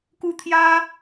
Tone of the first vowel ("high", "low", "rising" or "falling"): high